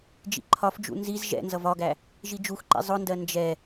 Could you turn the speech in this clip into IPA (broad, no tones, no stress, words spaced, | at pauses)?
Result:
d͡ʒḭǃʰɒfd͡ʒṵ nziz ʒɛ̰nzʌv ɒɡæ | ʒid͡ʒuxǃḭ zˤʊndɜ nd͡ʒɛ